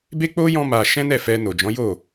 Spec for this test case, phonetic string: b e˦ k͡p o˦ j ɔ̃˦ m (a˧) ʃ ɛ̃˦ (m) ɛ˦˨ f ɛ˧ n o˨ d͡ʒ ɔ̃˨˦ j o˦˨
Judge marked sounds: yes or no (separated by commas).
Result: yes, no